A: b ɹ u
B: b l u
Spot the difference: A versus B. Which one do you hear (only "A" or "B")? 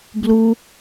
B